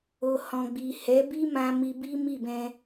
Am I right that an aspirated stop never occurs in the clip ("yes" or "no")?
yes